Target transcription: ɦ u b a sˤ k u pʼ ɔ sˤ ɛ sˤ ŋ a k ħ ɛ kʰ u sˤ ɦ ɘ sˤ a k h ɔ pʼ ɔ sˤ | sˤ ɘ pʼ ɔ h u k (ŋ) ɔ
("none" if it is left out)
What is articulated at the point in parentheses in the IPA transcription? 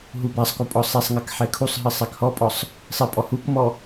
m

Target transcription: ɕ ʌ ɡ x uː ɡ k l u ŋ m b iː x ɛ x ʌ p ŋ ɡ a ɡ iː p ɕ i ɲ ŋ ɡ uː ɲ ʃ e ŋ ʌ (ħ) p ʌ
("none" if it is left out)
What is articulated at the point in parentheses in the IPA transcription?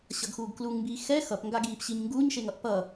ʔ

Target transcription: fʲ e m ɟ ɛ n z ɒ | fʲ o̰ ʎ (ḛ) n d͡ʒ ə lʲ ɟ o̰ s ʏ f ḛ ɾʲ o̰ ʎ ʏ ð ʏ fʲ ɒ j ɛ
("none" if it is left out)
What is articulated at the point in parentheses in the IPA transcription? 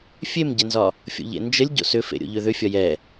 ḛ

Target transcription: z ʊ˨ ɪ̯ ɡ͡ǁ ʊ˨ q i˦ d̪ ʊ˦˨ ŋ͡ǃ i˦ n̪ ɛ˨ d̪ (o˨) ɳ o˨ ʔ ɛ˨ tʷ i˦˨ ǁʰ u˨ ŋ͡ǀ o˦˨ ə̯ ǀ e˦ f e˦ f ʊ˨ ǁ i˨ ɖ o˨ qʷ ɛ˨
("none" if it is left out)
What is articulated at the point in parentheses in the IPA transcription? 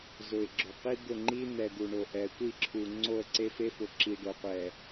u˨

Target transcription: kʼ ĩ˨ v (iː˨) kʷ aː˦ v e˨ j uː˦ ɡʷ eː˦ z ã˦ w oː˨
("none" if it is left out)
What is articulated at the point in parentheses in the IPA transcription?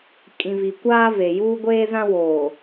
i˨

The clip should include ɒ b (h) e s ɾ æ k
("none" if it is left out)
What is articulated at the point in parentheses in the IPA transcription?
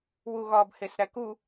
h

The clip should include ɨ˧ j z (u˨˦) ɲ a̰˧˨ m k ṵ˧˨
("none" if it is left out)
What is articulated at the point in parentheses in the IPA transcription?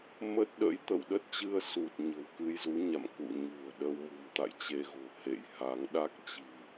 u˨˦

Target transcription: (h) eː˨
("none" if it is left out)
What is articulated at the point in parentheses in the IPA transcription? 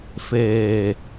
f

